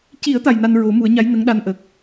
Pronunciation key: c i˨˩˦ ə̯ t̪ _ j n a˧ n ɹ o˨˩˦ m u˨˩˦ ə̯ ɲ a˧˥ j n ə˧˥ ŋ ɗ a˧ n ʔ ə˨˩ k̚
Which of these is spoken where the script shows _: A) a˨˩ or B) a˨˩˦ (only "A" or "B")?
A